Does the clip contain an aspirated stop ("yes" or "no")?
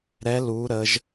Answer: no